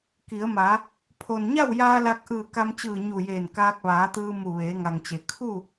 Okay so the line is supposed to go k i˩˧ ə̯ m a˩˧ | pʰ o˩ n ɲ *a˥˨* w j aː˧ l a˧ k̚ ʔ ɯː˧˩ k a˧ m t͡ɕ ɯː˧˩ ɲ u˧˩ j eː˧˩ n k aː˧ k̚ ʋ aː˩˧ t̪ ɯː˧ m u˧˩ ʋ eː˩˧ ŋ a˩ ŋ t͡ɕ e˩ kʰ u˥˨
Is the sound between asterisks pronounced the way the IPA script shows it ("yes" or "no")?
yes